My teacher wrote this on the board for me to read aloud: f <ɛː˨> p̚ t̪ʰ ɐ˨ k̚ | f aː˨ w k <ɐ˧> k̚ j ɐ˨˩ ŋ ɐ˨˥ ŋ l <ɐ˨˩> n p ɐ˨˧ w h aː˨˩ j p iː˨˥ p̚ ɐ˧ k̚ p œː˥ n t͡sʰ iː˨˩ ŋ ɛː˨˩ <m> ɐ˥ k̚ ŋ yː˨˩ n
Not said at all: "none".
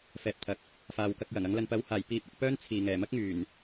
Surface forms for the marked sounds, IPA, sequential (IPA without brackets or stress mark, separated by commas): ɛː˨, ɐ˧, ɐ˧, m